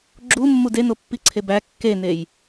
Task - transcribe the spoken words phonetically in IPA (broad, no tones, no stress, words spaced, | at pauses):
ɡ͡ǁumːud enopːiǀʰe bæ kːenej